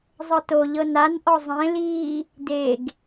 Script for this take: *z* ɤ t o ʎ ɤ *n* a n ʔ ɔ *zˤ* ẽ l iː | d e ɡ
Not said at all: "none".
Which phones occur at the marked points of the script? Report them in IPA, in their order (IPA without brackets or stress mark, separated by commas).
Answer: zˤ, n, zˤ